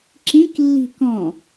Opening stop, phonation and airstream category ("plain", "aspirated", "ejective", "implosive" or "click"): click